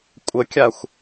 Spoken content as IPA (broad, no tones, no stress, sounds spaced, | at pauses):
kʷʼ ə kʲ a xʷ